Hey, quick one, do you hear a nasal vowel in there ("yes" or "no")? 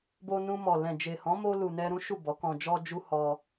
yes